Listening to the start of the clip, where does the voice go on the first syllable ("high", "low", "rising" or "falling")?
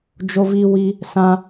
high